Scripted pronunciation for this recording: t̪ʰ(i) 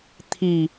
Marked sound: correct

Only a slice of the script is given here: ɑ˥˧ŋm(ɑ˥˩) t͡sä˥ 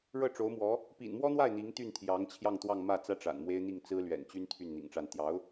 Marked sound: incorrect: ä˥˩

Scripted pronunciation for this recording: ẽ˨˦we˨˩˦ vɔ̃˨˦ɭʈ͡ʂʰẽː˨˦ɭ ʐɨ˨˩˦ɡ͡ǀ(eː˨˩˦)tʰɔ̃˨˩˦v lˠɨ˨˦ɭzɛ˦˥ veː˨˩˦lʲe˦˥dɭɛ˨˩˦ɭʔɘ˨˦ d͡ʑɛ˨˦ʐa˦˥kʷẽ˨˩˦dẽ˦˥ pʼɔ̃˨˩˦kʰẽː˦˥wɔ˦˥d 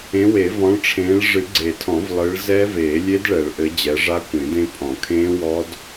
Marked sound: incorrect: e˨˩˦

